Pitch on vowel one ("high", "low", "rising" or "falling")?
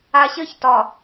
low